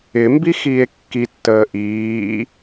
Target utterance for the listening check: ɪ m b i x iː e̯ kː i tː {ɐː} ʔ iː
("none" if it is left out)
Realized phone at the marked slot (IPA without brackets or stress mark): əː